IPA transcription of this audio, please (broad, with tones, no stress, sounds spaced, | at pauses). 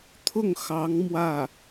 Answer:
t̪ʰ ʊ˥˩ ŋ x ɑ˧˥ ŋ m w ä˥˩